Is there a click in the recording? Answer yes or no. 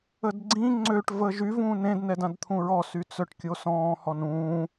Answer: yes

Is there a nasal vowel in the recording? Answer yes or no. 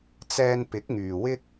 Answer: no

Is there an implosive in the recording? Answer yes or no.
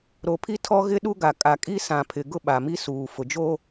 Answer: yes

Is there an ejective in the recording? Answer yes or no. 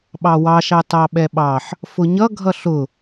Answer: no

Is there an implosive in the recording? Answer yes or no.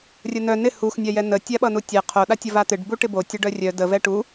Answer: yes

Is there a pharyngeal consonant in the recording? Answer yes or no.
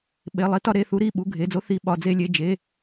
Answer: no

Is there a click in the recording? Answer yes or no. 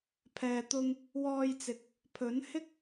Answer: no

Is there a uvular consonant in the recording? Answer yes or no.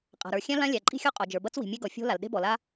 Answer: yes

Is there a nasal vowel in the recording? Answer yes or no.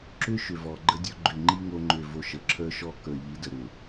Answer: no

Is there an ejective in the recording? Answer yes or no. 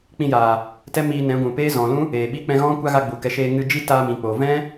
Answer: no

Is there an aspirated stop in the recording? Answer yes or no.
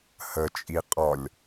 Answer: no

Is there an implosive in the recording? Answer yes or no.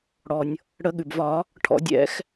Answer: yes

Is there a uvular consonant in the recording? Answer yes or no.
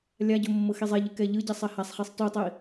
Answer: yes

